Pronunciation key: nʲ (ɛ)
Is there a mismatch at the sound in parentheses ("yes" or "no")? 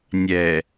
no